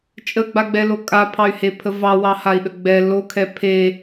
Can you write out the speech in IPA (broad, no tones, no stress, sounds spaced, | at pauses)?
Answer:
t͡ʃʼ ə ɡ͡b a ɡ͡b ɛ l o kʼ a pʰ ɑ y̯ h e pʰ ə v ɑ w ɑ h a i̯ ɗ ə ɡ͡b ɛ l o kʰ ɛ pʰ e